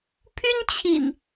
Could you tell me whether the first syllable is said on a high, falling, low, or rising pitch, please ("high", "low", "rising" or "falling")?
high